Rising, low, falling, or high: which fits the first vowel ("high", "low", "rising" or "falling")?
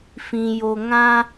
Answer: low